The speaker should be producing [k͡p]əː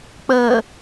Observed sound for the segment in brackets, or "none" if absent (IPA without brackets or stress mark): k͡p